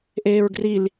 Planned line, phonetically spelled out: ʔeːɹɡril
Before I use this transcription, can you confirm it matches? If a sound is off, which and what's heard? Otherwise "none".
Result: none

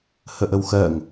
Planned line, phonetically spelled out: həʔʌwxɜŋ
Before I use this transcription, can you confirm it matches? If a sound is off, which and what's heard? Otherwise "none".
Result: ʌ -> ə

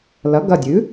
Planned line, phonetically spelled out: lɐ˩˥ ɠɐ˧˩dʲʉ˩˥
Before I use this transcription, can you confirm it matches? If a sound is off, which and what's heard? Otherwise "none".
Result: ɠ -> ɡ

